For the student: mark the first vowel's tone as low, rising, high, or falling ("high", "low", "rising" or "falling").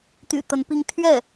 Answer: low